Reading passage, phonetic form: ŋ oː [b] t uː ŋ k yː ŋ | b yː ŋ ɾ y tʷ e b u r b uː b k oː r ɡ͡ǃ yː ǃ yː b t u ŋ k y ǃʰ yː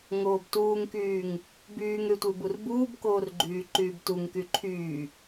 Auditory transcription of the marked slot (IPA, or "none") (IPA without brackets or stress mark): b